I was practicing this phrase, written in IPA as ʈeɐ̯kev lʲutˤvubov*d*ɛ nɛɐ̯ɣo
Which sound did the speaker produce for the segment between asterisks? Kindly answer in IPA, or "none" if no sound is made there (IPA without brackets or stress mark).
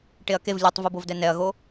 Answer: d